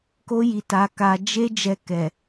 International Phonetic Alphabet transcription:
ko˦ji˧ ta˧ka˧ d͡ʒe˦ d͡ʒɛ˧kɛ˨

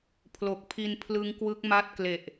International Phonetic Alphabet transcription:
pʰlo˨˩k̚pʰi˧n pʰlɯ˦˥ŋkwɯ˦˥k̚ ma˦˥t̚kle˨˩ʔ

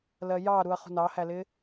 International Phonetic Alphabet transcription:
lɜjɑɾuɐ̯ χṳnɑhælɪ

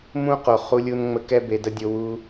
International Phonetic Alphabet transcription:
mũ˦qo˨ χu˧lʲu˧nŋ͡mə˧kɛ˦ be˨də˧ dʲo˧wu˦

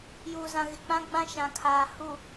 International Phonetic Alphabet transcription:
juː˨zã˨ɣɪ˨ k͡pã˦ɡ͡bã˦ ʃã˨kʰaː˨ hu˨

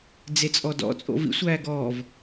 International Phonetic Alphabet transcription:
d͡zet͡sʼɔdɔ̰ t͡sʼo̰vḭ sʷæːɡɔːv

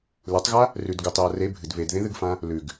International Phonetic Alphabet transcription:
letˤɣa | rʉd ɡutˤja re bʱɨd βedðẽðɨɡfã | lʉɡ

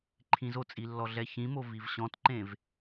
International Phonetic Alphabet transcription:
ǃʰĩzot͡sʼi lːɔɮɛçĩmo vivɕɔ̃tǃẽv

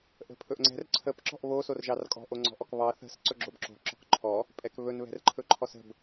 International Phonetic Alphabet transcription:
ʔə̤pʰɵʔŋ͡ǀɛ̤r ǀʰəp ǁɔ̤ʔβo sorʒɑrkʼɔ̤ ʔoŋ͡ǀɔ̤ʔɔkβɑ θə̤s ǀɵɡ͡ǁobǁo̤ ǁɔ̤kǃʰɔ | pʼɛkβɵn βɛ̤rǃʰɵǃʰɔsə̤b

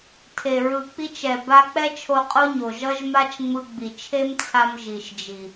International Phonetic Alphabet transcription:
tʰe˨ɹɯ˨k͡pi˧t͡ʃɛ˨ ba˧k͡pɛ˦ t͡ʃʰo˧qʼo˦ɲo˨ ʒʌ˦ʒma˦t͡ʃŋ͡mɯ˧ ɡ͡bi˨t͡ʃʰe˦mt͡sʰa˧m ʒi˨ʃd͡ʒi˨

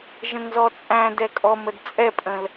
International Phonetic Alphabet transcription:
ʒə̃ŋzɔt͡sʼæ̃ dɛkʼɔm ədt͡sʼɛpʼə̃l

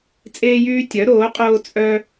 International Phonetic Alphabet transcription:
t͡sʼeː˦jyː˦ tʲœ˨˥ɾoː˨˥qʼoː˦ t͡sʼœ˦

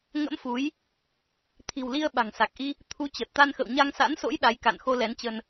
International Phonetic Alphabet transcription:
ŋə̰˧˥mfu˨˦j | t̪ʰi̤˨˩wli˧ə̯ ɓa̤˨˩ŋsa˨˩k̚ʔi˧ | t̪ʰu˨˦t͡ɕə˨˩t̚t̪a˧nxə̰˧˨w ɲa˧ŋsa̰˧˥nso̰˧˥j ɗa˨˦jka̰˧˨nxo˧ lɛ˨˦nt͡ɕə˧n

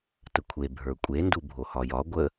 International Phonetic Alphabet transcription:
təkʷʰe bʱə˞kʷʼe ndubʱohɒjɒ ɡʷə

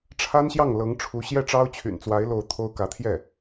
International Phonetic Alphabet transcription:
ʈ͡ʂʰa˥nɕjɑ˥˩ŋ lɤ˧˥ŋʈ͡ʂʰu˧˥ ɕjɛ˥˩ʈ͡ʂɑ˥ʊ̯t͡ɕʰy̰˨˩nt͡swa˧˥ɪ̯ lo˥˩ʊ̯ t̪ʰo˥ʊ̯ kä˧˥ t̪ʰjɛ˥˩

